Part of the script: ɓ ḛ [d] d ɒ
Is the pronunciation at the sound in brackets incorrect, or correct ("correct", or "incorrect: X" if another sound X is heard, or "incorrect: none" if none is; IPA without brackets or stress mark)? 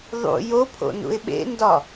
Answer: incorrect: n